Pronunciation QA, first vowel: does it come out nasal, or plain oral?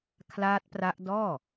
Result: oral